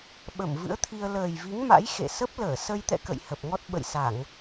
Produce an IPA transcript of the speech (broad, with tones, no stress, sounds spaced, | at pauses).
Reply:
ɓ ə˧˩ m v ɨ̰˧˥ ə̯ t̪ʰ i˧ ə̯ l əː˨˩ j v i˨˦ ŋ m a̰˧˥ j x ḛ˧˨ s ə˦˥ p̚ l əː˧˩ s ə˧ j t̪ ɛ̰˧˨ k ə̰˧˨ j h ə˨˩ p̚ ŋ ɔ˦˥ t̚ ɓ ə̰˧˨ j s a˧˩˨ ŋ